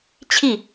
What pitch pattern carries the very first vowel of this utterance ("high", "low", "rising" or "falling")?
falling